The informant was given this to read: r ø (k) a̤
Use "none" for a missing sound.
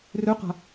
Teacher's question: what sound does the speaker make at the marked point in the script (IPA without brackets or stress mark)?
q